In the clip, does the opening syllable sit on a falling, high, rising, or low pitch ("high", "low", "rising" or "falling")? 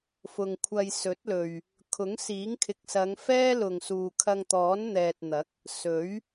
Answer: low